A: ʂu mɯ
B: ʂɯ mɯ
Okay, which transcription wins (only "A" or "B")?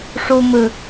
A